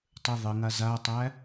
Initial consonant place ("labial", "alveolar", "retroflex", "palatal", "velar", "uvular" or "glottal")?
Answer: alveolar